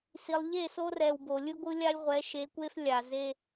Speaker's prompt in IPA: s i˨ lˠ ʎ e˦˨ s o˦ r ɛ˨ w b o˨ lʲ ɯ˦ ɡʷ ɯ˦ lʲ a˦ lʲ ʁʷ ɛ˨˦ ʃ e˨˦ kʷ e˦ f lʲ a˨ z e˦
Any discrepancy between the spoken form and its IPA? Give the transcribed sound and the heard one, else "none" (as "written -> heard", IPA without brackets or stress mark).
none